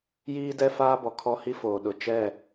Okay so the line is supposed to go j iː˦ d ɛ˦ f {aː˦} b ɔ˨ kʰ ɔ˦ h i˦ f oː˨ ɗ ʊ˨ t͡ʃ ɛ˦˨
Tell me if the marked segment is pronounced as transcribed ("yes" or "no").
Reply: yes